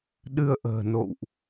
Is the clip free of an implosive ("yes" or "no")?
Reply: no